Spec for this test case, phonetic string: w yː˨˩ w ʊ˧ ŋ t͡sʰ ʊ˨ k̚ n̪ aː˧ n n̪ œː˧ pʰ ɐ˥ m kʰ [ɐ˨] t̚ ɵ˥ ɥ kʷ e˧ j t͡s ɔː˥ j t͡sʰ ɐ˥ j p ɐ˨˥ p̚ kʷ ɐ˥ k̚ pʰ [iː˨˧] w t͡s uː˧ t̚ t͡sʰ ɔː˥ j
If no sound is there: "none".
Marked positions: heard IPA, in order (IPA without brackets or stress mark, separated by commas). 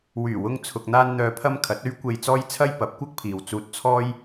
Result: ɐ˨˥, iː˨